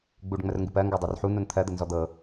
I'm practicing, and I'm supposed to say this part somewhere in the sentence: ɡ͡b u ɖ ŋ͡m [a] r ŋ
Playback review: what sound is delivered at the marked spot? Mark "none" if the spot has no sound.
ə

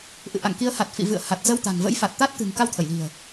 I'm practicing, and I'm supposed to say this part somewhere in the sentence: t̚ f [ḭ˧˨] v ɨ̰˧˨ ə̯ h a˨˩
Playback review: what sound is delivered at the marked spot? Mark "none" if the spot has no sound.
ḭ˧˨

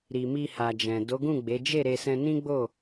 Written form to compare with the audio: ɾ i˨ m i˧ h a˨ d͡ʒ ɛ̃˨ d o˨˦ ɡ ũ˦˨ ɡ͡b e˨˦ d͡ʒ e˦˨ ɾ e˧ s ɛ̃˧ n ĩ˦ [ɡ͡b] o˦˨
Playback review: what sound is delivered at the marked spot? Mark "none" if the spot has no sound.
ɡ͡b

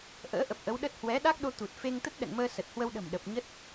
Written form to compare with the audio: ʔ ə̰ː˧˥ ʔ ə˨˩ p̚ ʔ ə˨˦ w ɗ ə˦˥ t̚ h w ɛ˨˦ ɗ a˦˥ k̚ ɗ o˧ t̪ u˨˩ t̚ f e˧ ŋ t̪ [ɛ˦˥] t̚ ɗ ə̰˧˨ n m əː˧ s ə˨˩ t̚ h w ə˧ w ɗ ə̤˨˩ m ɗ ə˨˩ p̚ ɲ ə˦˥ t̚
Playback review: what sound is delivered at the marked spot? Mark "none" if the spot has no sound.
ə˦˥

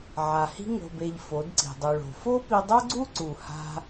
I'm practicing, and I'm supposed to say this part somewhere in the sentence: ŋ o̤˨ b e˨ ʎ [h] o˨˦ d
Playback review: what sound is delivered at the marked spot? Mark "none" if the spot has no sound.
f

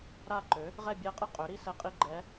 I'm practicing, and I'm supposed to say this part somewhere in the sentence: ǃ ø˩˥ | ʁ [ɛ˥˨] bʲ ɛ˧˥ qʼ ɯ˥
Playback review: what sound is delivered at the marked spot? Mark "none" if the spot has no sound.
ɛ˥˨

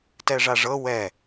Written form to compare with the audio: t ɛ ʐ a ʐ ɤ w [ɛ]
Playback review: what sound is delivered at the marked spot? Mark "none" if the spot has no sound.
ɛ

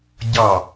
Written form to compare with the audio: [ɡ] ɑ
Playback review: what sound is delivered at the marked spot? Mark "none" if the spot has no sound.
ɟ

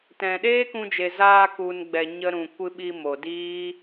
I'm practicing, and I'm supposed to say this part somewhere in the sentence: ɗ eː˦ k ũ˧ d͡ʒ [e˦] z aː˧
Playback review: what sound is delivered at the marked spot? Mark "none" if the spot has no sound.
e˨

